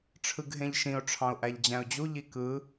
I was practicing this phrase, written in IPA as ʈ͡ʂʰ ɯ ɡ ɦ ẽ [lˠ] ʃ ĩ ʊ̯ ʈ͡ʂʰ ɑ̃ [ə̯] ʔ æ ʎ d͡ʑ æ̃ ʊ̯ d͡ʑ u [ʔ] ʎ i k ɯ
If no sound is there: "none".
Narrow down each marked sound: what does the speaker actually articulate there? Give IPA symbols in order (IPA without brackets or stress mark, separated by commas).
ʎ, ʊ̯, none